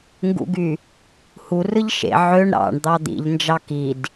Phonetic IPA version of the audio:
ŋɡṵɡy | hurɯʎ ʃḛ ʕøɳ ɾɑ̰ɳ d̪ɑd̪ḭʎnd͡ʒɑ kid

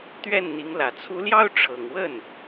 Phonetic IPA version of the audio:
t̪ɥɛ˥˩nn̪i˧˥ŋ lä˨˩t͡sʰu˧˥ ljɑ˥ʊ̯ʈ͡ʂʰɤ˨˩ŋwə˥˩n

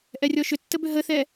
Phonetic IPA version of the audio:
ʔɛrʲɔʃʏtːə bʏɦəθɛ

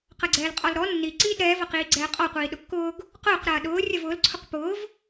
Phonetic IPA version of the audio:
qɐɡ͡ǀɛːlqʼɔlɾɔ nːi ǀiːdɾɛːvɐqiː ɡ͡ǀɛːqʼɔqʷiː ɗʊkːʊːɡ | qʊːq ɾɐːɗʊː rʲɐvʊːlǀʰʊq pʊːv

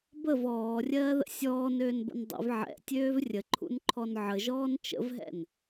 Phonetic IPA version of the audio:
bəv ɔːrʲɜːðə̰ sʲɔːnøːnbə̰n dˤə̰v ʕɛ̰tʲøːv rʲəǃʰṵnǃʰɔn ʕəʒɔːn t͡ʃə̰vɦɛ̰n

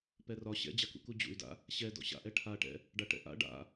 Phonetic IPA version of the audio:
pɛrɒ ɕɛ̰d͡ʑakṵku d͡ʑṵy̯da̰ | ɕɛ dɔ̰ɕa̰ʔɛ ʈʰaʈɛ̰ | ɖaʈɛ̰ʔa̰ ɖa̰

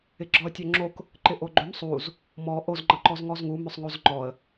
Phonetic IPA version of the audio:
ɪɡ͡ǁɔə̯tʲoŋ͡ǁok | ǃɪʔoɡ͡ǃʏm sˤuz | mɔ ʔoz ŋ͡ǃʌǃɔzŋɔzŋu mʏsˤŋozŋ͡ǃɔə̯

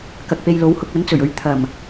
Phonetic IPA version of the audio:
kɐ˨k̚pe˧jlo˨˥whʊ˧k̚ ɐ˨˥nt͡sɵ˨˩ɥ ɵ˨˧ɥ t̪ʰɐ˨˩m

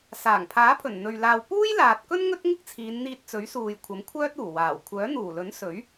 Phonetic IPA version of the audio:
saː˨˩ŋpʰaː˨˥pʰɵ˨˩n n̪ɵ˨ɥ laː˨w puː˥jlaː˨t̚kɵ˥n ŋɵ˥t̚ŋɪ˥k̚t͡sʰiː˨˧n n̪iː˧t̚t͡sɵ˨˥ɥsuː˨jkʷʰɐ˨˥m kʷʰœː˥t̚ uː˨˩waː˨˩w kʷʰœː˨˥n̪uː˨˩lɵ˨˥n sɵ˨˥ɥ

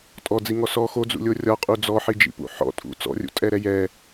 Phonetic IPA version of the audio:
tʼɔd͡ziŋɔ sɔ xod͡zṵlʲo rʲɒqʼu d͡zɔħid͡ʒḭpṵ ħɔ̰tʼṵ t͡sɔ̰rʲṵtʼɛɾɛ jɛ

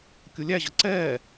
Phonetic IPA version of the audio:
kʲulʲæʑʌ ǀɛː

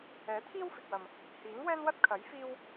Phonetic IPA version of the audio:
ɛː˨˥t̪ʰiː˥wfɪ˨k̚wɐ˨m | hiː˨˥ŋwɛː˥nwɐ˥t̚kʰɐ˨˥j fiː˥w

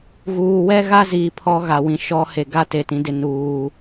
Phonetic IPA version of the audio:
ɣuː˨wɛ˦ɣa˦ ziː˨ pʰɔ˦ɣa˨wĩ˨ ʃɔ˦ he˨ɡa˦ te˨tĩ˦dɪ˦ nuː˨

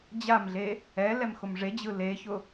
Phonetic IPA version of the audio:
d͡ʑamɮe | ɛ lɛmxʊmʐed͡ʑɯ leçʊ

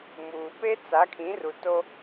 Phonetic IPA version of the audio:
muː˨ pe˦t͡sa˨˦kʰĩ˨˦ru˨ to˦

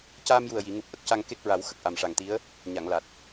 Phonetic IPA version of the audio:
caː˧mju˨˩ə̯ji˨˩˨ŋu˨˩p̚ ʔə˦˥k̚ca˧ŋ ke˦˥k̚ɹa˨˩˦w xə˨˩k̚ʔa˨˩mʂa˨˩ŋt̪i˧˥ə̯ | ɲa˨˩˨ŋla˨˩t̚

